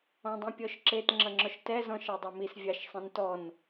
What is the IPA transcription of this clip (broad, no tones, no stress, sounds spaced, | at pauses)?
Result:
ɔ̃ dˤ ĩ pʲ ɔ ʃ ǁ e t ŋ͡ǁ ʌ ŋ͡ǁ ɔ ʃ t ɛ z ɔ̃ ʃ ɑ dˤ a m i s vʲ ɑ ʃ sˤ ĩ n t ɔ n